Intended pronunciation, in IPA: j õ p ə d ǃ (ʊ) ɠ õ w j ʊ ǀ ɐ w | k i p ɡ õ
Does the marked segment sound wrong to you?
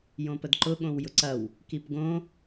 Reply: no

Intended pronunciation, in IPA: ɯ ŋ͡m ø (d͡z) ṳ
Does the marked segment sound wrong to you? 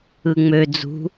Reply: no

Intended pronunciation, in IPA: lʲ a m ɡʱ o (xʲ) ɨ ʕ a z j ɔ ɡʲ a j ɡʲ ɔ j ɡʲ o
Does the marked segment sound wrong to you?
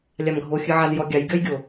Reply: no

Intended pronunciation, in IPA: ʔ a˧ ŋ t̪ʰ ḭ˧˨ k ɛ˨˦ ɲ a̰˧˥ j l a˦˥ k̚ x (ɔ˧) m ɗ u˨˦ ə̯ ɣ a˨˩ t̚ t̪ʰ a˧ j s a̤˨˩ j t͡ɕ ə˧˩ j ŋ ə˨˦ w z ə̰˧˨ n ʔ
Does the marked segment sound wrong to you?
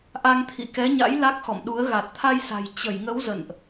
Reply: yes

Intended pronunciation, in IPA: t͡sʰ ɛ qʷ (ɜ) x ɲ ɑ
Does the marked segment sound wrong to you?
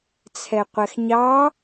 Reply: yes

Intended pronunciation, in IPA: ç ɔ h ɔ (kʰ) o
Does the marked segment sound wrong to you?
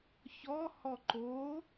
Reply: yes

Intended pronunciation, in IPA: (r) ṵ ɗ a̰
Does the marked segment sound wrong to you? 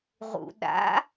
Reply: yes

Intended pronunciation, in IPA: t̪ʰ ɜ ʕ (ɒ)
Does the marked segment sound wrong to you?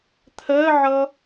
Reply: yes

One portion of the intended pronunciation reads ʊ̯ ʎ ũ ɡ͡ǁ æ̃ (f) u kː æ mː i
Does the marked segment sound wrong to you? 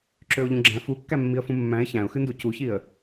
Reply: no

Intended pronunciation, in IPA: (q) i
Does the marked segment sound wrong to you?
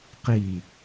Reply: no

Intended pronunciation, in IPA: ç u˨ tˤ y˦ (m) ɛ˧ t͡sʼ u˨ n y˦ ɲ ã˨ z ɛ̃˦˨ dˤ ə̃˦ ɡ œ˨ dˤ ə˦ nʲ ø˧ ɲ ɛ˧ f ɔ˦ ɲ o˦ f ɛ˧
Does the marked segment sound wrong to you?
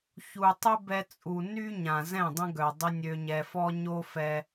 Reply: yes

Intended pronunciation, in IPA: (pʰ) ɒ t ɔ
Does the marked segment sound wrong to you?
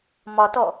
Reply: yes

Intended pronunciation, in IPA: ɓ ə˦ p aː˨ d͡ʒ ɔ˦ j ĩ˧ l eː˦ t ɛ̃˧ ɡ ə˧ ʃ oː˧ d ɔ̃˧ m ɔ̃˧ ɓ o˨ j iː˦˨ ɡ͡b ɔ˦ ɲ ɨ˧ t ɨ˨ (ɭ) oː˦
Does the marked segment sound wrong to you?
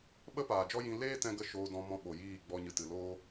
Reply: yes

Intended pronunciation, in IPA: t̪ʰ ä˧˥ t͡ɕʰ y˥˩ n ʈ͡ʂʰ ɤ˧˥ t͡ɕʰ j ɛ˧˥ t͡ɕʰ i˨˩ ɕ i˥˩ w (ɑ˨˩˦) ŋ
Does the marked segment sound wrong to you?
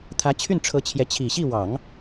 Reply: no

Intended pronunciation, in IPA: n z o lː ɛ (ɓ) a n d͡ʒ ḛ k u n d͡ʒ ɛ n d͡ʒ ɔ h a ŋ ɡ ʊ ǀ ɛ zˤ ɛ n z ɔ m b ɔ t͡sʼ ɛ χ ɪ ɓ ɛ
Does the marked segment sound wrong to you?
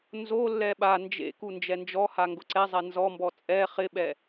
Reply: no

